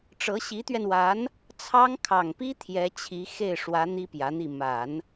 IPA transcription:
ʈ͡ʂɤ˧˥ɕi˧˥t̪ɥɛ˧nwa˧˥n | t͡sʰɑ˥ŋ kʰɑ˨˩ŋpi˥ t̪ʰjɛ˧˥t͡ɕʰi˧˥ xe˥˩ɪ̯ʂwä˧˥ n̪i˥pjä˧˥n̪i˥˩ ma˨˩˦n

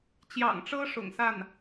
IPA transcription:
t͡ɕjɑ̰˨˩ŋʈ͡ʂɤ˥ ʂʊ̰˨˩ŋsa˥˩n

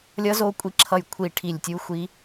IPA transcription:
lʲʌ˦˥zo˦˥kʷʼi˦˨ǁʰʌ˦˨j kʷʰi˦˨ʈʰi˦˨lʲtʲu˦˥ xʷi˦˥

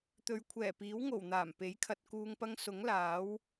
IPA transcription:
t̪ɵ˨ɥkʷʰɛː˨˩piː˨˥wŋo˨˩w n̪aː˨˩mpe˨˥jkʰɐ˨t̚ kuː˨ŋpɐ˧ŋ sʊ˨˥ŋlaː˨˥w

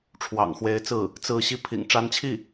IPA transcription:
ʈ͡ʂʰwɑ̰˨˩ŋxwe˧˥ɪ̯t͡sɹ̩˥˩ | t͡sɹ̩˥˧ ɕi˥˩pʰḭ˨˩ŋ ʈ͡ʂa˧˥nt͡ɕʰi˥˩

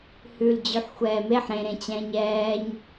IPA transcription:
hʉl d͡ʑʉħxʷɛːmeħ ɾẽɾẽt͡ɕɛ̃ːɲ ɛːɲ

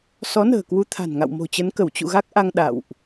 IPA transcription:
sɔ˨˦nə̤ː˨˩kwu˨˦t̪ʰa̤˨˩n ŋa̰˧˨wmo̤˨˩t͡ɕə˨˦nkə˧˩w t͡ɕṵ˧˨ɣa˦˥k̚ʔa˧ŋ ɗa̰˧˨wʔ

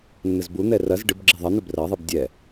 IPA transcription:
nːɘzbun̪ɛ rɐz ɖɨbɡ͡ǁɘ ðˤɐn̪ɘ brɐðˤɨb dʲɛ

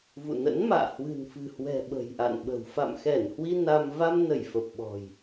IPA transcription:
vṵ˧˨nə̰˧˥nma̰ː˧˨ hwɨ̤˨˩nfɨ̤˨˩hwɛ̤˨˩ ɓə̤˨˩jʔa̰˧˨nɓə̤˨˩w fa̰˧˨mxɛ˧˩n hwi˧ na˧m va˧mnə˧˩j fə˨˩p̚ɓɔ̤˨˩j

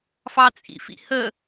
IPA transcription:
fɑt͡sʼḭfḭhə

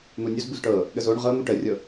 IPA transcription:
n̪unʲuz buzʈɤ | ɠəzoɳ ʁɤ n̪uʈərʲɤ

